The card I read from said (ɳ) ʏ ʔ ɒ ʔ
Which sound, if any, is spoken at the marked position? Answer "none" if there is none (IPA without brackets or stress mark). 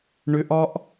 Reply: ɳ